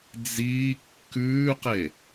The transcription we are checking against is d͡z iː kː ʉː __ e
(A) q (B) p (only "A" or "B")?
A